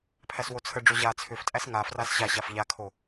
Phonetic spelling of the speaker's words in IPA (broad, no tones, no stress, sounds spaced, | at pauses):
pʰ æ s w o t͡sʰ ə ɖ͡ʐ o ʑ a t͡sʰ ʏ f tʼ æ s ŋ a f r a s ɕ a ɕ a f ʎ a kʰ o